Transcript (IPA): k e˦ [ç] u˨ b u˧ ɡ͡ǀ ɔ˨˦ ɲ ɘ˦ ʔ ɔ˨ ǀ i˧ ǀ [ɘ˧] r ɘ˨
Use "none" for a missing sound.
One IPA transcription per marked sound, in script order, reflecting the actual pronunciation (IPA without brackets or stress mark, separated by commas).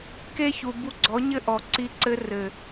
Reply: ç, ɘ˧